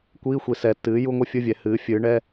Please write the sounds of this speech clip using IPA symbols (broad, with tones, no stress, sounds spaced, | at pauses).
kʷ iː˧˥˧ xʷ i˩˧ s ɛ˩˧ tː ɨː˩˥ j u˧˥˧ ŋʷ ɨ˥ fʲ ɯ˧˥˧ vʲ ɛ˩˥ h ɨː˩˥ fʲ ɨː˩˥ ɳ ɛ˧˥˧